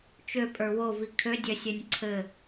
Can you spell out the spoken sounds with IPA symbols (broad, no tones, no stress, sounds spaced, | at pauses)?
t͡ʃ ø pʼ ə˞ w o v i kʰ ø dʲ œ sʲ œ nʲ ǀʰ ɘ